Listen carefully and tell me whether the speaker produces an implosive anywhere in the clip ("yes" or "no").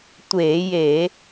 no